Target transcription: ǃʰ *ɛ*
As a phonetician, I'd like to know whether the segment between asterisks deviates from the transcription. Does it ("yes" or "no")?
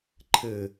yes